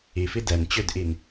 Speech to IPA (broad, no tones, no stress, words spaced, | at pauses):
ifi dɛn t͡ɕødʔin